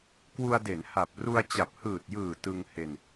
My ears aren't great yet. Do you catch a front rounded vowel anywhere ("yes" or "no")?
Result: no